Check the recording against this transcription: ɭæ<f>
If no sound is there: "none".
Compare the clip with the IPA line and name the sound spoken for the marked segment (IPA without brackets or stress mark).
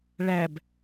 b